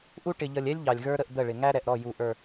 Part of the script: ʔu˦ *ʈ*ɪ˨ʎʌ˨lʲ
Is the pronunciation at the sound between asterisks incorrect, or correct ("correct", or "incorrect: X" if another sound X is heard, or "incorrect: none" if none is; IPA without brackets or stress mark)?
correct